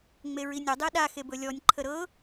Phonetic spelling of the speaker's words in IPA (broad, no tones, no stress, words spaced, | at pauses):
ŋ͡meɹinʲɵ dˤeɗa xebɵlʲɔnʲ ǃʰəɾɤ